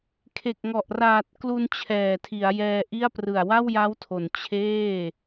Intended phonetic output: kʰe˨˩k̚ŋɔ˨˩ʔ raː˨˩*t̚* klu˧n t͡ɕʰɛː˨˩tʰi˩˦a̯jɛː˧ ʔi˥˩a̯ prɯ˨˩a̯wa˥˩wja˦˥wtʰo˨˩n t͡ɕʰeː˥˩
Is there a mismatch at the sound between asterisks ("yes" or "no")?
no